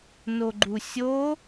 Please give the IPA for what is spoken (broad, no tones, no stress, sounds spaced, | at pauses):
n o ɡ͡ǃ u sʲ o